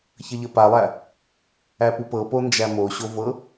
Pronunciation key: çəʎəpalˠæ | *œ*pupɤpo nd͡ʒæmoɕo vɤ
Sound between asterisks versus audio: incorrect: æ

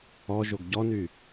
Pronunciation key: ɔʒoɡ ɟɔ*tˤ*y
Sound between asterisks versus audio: incorrect: n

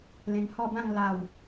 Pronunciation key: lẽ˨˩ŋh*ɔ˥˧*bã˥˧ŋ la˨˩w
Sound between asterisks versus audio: correct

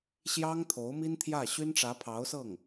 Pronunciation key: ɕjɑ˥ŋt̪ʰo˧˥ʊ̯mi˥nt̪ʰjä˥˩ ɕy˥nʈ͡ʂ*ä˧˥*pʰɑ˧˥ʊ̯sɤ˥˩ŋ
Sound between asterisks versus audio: correct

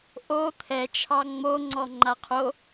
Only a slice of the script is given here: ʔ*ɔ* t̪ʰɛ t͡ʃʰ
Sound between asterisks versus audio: incorrect: o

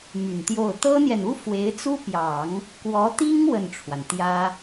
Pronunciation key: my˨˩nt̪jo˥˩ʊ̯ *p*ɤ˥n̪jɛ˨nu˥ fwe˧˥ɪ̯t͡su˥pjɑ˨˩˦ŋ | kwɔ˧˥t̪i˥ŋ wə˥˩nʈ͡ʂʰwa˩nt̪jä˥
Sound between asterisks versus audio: incorrect: t̪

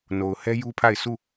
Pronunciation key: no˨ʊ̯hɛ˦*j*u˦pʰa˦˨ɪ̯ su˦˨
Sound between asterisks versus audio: correct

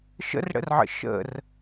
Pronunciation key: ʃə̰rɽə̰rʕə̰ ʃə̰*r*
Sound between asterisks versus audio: correct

